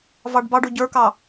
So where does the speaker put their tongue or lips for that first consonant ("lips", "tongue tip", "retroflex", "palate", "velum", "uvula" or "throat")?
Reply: lips